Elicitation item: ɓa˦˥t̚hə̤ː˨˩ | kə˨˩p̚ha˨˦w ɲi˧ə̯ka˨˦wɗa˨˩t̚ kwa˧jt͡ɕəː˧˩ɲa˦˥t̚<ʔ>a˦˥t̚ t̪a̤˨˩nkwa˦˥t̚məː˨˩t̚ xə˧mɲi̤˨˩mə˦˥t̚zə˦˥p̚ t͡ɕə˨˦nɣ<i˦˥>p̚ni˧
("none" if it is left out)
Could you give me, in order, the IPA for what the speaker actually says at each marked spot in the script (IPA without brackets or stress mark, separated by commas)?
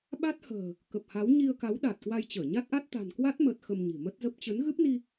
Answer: ʔ, ɨ˦˥